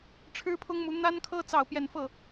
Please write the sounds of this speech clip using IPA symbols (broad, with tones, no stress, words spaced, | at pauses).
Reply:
ʈ͡ʂʰɻ̩˥pʰʊ˥ŋmu˧˥ n̪a˥nkʰɤ˥ t͡sɑ˥˧ʊ̯pjɛ˥˧n fɤ˥˩